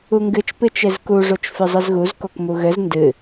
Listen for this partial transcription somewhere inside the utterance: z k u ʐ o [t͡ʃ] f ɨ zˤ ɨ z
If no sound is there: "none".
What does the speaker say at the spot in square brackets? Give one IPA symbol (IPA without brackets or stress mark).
t͡ʃ